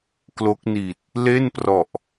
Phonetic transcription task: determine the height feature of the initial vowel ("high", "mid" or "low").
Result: mid